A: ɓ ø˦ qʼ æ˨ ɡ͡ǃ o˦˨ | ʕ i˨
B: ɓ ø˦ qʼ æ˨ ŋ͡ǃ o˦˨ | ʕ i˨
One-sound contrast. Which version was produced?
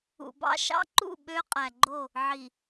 A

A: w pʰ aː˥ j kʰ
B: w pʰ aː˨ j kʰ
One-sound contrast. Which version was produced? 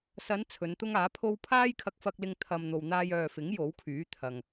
A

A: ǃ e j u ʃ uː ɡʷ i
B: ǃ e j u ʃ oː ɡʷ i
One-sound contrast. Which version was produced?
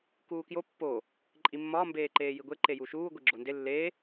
A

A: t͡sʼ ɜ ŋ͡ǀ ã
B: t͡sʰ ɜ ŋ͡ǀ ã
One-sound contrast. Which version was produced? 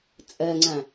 A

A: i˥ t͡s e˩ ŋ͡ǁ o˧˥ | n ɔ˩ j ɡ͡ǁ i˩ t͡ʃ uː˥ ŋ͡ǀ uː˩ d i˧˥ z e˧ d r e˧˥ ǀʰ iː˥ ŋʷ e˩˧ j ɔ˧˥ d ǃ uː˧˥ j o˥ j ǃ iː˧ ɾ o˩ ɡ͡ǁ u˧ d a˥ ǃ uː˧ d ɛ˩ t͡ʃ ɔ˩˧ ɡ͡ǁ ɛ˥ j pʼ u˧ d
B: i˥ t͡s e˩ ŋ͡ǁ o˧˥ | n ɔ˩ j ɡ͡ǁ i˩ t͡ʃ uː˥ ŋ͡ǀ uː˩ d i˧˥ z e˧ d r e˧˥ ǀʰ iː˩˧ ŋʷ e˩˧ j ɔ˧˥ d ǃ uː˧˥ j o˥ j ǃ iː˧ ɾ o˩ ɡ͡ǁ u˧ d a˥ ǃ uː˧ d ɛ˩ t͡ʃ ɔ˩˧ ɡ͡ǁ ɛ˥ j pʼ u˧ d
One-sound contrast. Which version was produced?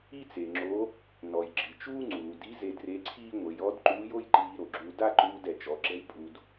A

